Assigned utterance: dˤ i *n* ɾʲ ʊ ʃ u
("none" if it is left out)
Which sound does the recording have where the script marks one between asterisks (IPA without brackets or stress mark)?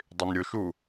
n